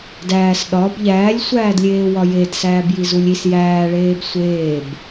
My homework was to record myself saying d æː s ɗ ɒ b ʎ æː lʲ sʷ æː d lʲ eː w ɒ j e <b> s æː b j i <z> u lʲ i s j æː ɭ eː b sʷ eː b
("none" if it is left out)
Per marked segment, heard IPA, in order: d, z

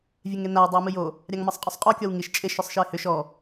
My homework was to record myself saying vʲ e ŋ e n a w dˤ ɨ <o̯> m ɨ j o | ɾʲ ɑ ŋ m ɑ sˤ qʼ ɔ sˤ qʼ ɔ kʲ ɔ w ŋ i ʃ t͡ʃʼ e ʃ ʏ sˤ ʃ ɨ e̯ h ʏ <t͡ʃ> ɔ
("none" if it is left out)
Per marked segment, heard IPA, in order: o̯, ʃ

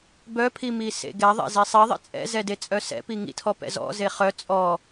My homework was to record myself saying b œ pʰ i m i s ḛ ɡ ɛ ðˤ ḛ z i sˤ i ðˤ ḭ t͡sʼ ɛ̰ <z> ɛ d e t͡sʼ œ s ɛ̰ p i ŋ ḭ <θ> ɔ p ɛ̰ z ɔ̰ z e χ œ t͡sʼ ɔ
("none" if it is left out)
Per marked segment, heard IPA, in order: z, tʰ

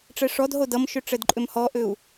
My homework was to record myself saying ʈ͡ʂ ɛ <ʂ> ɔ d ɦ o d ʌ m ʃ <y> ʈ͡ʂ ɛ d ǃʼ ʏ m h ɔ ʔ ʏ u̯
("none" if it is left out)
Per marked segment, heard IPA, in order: ʂ, ʏ

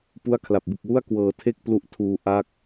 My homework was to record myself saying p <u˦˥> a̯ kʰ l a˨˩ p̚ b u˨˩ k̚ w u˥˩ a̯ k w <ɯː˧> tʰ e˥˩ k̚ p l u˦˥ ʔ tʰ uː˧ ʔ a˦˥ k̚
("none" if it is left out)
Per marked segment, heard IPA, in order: u˦˥, ɤː˧

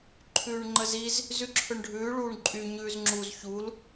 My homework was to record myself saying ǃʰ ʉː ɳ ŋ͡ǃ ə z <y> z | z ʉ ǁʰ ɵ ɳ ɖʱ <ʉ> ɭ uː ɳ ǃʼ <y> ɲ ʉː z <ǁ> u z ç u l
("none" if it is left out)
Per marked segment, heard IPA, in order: i, ʉː, y, ŋ͡ǁ

